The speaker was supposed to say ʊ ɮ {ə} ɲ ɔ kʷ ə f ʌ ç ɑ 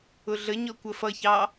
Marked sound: correct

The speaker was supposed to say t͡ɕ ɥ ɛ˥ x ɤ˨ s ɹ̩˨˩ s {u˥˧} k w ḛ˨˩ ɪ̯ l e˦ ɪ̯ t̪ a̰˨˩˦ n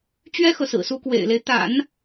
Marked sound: incorrect: u˧˥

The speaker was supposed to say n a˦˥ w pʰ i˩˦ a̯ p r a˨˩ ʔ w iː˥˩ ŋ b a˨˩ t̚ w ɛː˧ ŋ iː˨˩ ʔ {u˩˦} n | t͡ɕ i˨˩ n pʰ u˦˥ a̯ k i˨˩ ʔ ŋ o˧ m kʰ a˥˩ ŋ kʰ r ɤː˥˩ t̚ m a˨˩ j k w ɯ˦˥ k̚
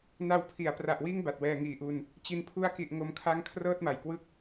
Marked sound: incorrect: u˧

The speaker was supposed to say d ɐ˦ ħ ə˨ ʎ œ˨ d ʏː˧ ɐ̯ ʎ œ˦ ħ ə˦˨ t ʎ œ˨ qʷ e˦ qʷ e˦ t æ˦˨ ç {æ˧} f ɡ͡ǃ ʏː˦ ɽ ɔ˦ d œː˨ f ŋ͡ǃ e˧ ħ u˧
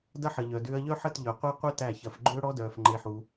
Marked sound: incorrect: ɐ˧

